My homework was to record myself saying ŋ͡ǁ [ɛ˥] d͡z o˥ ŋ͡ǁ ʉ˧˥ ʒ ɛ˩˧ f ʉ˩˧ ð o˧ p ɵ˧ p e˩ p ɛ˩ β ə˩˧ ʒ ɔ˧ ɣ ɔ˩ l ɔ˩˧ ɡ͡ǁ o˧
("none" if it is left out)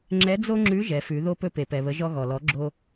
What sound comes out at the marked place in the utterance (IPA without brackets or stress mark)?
ɛ˧˥